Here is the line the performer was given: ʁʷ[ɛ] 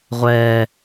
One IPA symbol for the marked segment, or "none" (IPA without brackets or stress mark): ɛː